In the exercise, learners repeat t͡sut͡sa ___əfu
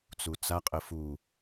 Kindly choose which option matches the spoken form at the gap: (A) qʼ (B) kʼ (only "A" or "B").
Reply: A